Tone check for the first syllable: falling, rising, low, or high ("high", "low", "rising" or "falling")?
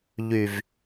low